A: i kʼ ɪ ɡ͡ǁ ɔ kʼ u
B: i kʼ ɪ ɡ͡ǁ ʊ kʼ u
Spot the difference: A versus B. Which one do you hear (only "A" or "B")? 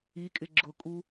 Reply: B